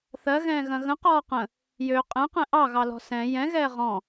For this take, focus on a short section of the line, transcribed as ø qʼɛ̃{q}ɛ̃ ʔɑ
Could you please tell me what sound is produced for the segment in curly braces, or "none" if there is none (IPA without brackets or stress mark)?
q